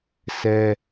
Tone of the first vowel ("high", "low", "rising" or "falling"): high